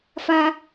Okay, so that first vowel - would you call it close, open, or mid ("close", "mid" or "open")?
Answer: open